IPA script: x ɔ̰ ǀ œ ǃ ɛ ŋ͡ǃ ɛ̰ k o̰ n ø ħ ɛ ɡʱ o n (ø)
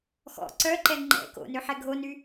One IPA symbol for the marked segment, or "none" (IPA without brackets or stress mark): y